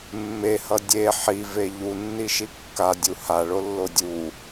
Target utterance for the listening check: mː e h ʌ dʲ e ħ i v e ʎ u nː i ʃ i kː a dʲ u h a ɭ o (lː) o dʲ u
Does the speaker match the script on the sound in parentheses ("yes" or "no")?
yes